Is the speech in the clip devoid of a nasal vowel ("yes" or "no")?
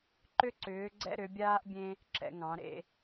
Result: no